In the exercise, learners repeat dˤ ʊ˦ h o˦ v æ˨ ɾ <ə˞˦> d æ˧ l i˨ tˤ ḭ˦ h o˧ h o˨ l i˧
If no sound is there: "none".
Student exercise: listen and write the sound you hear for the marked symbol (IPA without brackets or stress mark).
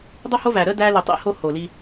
ə˦